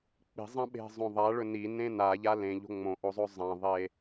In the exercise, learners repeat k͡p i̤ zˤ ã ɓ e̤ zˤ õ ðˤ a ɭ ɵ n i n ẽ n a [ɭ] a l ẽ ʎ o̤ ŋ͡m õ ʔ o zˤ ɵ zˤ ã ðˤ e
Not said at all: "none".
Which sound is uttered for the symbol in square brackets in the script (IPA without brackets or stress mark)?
ʎ